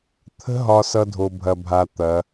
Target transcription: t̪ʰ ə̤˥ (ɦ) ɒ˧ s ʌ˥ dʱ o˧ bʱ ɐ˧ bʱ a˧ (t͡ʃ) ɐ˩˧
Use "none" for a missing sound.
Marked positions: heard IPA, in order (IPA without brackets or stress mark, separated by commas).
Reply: ɦ, t̪